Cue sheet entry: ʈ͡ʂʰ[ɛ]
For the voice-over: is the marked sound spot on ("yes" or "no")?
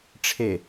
no